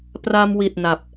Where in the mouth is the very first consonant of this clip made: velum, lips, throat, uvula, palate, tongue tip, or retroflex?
lips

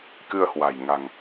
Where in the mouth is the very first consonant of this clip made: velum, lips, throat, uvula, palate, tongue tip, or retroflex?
velum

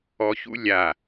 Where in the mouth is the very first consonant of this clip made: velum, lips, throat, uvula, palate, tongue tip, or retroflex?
palate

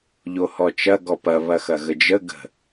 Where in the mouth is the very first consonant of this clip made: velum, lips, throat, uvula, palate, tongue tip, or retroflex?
palate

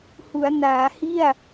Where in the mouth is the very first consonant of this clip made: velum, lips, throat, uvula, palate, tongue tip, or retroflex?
throat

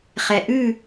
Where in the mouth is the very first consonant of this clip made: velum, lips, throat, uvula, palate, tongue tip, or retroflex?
uvula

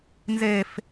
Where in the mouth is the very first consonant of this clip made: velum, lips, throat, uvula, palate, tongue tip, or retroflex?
tongue tip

